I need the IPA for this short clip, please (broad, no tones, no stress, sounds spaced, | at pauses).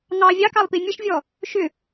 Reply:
ŋ ɑ vʲ ɑ k ɑ lˠ p i mʲ ə ʃ vʲ ɔ | ʃ ʏ